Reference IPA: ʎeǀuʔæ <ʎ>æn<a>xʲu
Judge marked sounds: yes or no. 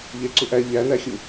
yes, no

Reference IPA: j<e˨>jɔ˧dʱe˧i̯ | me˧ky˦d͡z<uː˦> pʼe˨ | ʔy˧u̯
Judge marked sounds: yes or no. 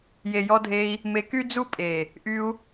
yes, no

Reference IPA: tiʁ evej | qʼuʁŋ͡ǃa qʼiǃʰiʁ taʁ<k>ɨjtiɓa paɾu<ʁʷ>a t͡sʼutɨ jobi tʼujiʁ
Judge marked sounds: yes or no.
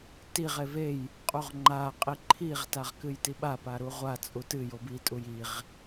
yes, yes

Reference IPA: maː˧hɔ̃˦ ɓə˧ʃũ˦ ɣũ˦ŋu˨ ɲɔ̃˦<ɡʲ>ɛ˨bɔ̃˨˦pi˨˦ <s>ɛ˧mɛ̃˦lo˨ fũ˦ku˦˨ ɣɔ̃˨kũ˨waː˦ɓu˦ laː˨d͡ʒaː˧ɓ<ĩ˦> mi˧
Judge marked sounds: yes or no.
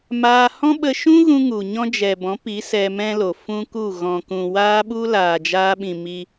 no, yes, no

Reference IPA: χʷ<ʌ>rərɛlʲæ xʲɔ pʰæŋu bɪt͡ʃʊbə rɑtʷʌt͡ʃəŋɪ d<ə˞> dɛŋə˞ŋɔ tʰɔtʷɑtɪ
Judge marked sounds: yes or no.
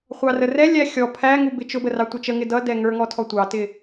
no, no

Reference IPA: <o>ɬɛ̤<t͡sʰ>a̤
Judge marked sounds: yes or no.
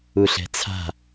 no, yes

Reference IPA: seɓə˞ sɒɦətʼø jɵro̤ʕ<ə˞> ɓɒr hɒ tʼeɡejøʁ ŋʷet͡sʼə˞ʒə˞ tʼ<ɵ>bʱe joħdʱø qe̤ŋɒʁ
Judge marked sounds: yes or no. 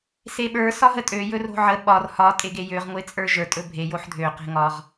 no, yes

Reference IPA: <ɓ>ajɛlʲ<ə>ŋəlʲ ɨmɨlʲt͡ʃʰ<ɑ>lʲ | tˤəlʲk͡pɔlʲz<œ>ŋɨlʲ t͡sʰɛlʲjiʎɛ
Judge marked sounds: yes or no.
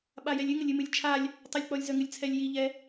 yes, no, no, yes

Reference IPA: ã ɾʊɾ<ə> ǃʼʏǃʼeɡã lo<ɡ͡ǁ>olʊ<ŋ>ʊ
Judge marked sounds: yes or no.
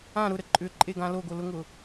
yes, no, yes

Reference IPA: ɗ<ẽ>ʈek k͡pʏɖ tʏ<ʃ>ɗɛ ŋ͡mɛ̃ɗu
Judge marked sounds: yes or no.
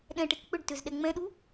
no, no

